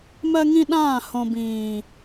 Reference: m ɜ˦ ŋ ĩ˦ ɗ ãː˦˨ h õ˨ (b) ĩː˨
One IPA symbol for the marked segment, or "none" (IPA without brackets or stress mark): b